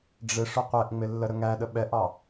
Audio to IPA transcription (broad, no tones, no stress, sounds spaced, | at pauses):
ɖ͡ʐ ɪ ʂ ʊ qʷ ɛ ʔ ŋ͡m ɪ lː ə ɾ ə ŋ æ ɗ ə ɓ ɛ ʔ ɑ